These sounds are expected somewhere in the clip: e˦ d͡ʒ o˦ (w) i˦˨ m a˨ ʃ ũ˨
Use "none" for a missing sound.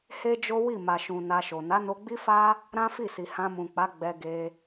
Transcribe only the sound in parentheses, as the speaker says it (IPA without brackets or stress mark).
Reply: w